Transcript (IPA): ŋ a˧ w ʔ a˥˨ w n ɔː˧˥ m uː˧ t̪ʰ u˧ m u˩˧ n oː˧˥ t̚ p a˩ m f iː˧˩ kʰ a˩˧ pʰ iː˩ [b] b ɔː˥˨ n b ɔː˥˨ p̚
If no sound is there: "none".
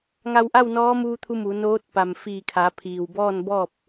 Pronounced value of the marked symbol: w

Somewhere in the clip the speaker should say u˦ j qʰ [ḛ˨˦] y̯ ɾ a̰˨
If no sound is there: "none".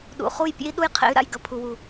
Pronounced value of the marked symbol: ḛ˨˦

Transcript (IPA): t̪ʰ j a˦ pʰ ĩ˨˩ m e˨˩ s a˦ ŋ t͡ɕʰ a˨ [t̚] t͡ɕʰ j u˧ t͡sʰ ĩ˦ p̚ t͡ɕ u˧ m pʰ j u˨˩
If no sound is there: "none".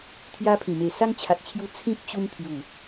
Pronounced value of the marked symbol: t̚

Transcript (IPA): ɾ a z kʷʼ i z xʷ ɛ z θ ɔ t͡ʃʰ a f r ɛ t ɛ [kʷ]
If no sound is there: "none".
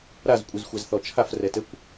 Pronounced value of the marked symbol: kʷ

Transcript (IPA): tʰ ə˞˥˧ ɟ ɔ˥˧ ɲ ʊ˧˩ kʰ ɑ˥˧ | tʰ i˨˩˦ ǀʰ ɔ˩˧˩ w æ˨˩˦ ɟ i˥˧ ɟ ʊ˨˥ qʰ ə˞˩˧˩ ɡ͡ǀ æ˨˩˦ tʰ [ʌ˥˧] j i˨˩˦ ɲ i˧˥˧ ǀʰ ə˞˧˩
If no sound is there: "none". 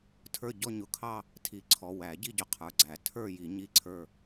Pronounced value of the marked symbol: ə˞˥˧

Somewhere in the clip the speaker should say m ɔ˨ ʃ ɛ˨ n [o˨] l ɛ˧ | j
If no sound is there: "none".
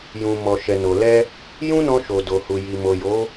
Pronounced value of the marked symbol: o˨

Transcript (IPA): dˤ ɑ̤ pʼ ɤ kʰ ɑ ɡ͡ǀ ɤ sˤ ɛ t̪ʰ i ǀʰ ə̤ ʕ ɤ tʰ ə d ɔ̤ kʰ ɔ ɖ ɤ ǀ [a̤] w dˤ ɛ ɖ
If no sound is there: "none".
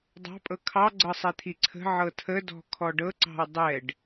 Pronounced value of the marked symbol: ɑ̤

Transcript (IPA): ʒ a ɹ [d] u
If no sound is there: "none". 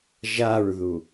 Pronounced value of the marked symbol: ð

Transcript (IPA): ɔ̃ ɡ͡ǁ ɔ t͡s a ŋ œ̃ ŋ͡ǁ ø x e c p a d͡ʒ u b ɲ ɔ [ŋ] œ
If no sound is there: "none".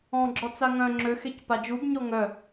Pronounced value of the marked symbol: ŋ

